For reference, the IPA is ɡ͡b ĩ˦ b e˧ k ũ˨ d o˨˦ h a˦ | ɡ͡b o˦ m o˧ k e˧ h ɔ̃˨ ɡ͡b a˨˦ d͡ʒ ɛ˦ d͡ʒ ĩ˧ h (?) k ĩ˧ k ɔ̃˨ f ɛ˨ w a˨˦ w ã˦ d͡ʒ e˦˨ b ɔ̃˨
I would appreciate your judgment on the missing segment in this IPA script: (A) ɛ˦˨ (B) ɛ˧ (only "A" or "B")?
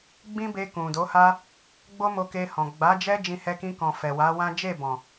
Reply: B